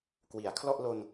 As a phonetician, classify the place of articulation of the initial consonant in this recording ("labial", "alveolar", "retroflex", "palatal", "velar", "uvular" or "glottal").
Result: velar